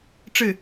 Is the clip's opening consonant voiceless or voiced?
voiceless